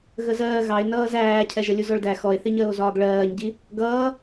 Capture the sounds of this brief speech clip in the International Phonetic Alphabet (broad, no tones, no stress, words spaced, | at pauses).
ɣəzɜː ɣɑe̯ nʌːzæːcʰɛ ʒəlʲuzɔɭdæ xɔe̯θiɲəːo̯ zɒːɡɭɜːɲɟi | ɡʌː